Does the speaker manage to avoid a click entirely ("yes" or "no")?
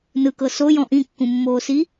yes